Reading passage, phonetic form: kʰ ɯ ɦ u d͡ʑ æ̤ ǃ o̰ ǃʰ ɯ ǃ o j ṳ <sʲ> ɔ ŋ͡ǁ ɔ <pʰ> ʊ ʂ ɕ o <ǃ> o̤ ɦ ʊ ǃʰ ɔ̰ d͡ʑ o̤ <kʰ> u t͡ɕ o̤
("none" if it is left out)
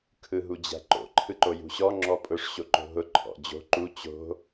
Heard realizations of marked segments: ɕ, pʼ, ǃ, ǃ

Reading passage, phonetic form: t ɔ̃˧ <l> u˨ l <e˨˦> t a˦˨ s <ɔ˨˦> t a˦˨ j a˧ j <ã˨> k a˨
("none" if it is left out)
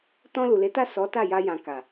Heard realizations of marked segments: l, e˨˦, ɔ˨˦, ã˨

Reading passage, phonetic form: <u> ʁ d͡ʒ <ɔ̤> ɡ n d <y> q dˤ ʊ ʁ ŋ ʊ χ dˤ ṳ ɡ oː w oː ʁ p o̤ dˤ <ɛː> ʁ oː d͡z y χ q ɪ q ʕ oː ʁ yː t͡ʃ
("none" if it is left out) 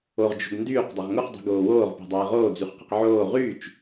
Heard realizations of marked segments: o, o̤, yː, ɛː

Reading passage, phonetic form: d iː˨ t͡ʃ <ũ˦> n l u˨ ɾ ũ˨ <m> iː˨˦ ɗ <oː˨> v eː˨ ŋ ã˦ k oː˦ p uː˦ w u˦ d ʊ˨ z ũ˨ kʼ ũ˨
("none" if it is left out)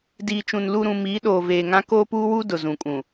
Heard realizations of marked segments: ũ˨, m, oː˨

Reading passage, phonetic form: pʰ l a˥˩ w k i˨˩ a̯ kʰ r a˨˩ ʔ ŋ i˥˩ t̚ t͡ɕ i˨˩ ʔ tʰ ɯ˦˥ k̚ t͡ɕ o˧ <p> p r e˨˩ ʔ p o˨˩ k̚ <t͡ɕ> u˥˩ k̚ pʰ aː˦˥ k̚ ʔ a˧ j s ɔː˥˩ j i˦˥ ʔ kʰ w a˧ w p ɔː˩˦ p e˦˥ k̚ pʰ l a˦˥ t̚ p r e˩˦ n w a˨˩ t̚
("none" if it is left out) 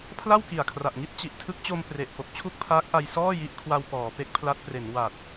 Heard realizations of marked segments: m, t͡ɕʰ

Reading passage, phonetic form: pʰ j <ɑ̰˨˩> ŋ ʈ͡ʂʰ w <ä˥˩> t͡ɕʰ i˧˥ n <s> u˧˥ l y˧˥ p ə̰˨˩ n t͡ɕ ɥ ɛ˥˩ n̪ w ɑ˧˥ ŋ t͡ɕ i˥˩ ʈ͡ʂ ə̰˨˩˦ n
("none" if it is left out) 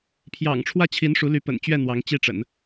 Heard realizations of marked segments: ɑ̰˨˩, ä˥˩, ʂ

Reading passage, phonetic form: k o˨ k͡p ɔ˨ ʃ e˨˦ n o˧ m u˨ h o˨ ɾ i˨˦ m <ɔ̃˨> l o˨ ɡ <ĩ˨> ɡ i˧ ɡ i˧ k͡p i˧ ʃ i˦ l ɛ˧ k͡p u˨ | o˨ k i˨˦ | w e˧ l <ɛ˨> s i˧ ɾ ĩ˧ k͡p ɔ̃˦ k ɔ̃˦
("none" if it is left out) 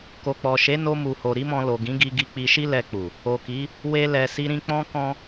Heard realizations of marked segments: ɔ̃˧, ĩ˨˦, ɛ˨

